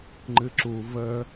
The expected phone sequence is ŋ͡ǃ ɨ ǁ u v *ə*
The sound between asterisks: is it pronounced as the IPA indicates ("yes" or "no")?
yes